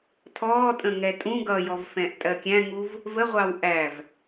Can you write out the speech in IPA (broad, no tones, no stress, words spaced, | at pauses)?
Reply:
tʰɔːtʼə̃ ŋɛtʼũ ɡʌjɔvfɛ̃ʔ tʼɜkʲæ̃ŋuv | vəʁʷɑw ʔæv